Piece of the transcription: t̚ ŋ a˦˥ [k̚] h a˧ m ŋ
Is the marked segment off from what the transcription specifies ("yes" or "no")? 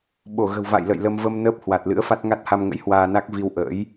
yes